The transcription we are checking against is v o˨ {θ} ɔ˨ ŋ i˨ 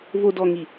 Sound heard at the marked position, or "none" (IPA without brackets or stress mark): d